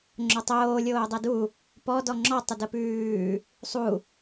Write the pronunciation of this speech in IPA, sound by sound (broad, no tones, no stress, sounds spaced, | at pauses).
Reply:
ŋ͡ǁ o tˤ oː lʲ oː dˤ ɛ d u | p ɔ d ɔ ŋ͡ǁ ɔ tˤ ə d ə p ʉː | sˤ u